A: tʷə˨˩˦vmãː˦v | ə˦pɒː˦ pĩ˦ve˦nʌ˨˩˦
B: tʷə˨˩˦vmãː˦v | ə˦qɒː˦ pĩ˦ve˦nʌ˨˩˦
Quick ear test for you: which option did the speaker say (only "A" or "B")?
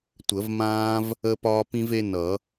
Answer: A